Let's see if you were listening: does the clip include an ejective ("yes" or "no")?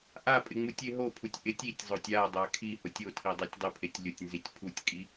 yes